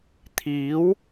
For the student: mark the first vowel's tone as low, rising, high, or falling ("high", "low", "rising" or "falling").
rising